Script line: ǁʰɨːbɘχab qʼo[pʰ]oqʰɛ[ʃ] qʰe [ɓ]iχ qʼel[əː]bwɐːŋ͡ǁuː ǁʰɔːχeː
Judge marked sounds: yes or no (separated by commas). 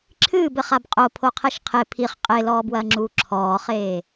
yes, yes, no, no